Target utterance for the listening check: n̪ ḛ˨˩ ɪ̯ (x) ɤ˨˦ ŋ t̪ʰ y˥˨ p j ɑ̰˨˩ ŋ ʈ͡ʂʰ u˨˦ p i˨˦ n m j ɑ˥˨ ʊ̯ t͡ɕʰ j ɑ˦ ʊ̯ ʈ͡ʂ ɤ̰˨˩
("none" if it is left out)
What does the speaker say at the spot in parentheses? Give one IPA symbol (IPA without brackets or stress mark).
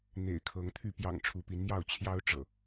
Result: kʰ